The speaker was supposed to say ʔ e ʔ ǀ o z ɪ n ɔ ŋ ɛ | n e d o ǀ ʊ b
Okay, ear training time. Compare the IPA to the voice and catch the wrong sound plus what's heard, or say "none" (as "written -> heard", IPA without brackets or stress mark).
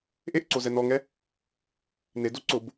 ɪ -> ɛ